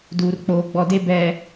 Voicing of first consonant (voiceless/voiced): voiced